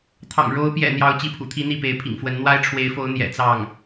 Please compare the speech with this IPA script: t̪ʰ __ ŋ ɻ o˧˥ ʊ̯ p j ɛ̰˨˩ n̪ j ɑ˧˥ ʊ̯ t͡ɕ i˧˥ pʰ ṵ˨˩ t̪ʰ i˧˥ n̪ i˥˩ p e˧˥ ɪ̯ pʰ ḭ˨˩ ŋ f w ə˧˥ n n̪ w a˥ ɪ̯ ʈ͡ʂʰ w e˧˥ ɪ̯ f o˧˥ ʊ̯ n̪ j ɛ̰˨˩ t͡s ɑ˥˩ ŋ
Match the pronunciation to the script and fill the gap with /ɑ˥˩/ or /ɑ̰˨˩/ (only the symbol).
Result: ɑ̰˨˩